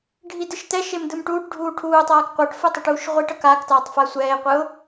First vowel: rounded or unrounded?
unrounded